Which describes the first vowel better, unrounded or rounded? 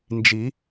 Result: unrounded